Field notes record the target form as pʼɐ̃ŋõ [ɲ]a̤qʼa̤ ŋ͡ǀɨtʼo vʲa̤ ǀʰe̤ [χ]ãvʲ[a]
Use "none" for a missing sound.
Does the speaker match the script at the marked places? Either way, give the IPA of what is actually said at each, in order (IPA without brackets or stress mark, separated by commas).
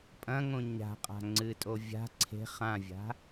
ɲ, χ, a̤